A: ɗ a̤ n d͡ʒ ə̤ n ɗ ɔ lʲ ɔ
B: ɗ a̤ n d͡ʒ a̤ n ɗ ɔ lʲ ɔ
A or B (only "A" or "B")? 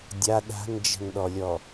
A